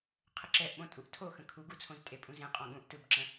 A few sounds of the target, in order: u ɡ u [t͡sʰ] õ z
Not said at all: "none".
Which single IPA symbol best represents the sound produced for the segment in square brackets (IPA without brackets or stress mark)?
t͡sʰ